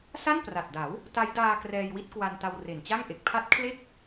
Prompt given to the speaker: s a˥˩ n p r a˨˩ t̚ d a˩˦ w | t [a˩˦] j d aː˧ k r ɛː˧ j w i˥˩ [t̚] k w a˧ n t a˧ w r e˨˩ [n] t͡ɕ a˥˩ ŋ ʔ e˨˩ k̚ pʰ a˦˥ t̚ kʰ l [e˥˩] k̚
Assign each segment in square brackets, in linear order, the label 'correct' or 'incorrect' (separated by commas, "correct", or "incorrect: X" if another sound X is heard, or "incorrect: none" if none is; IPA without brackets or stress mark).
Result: incorrect: a˦˥, correct, correct, correct